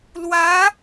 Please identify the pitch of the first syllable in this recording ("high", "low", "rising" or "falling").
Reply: rising